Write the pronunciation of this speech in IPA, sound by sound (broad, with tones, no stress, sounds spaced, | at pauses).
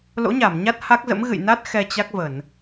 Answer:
l o̰˧˥ ɲ a˧˩ m ɲ a˦˥ t̚ h a˦˥ k̚ z ə̰˧˥ m ɣ ɨ̰˧˨ j n a˦˥ t̚ x ɛ˧ t͡ɕ a˦˥ k̚ v ə˧˩˨ n